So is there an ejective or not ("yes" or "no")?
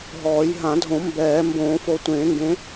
no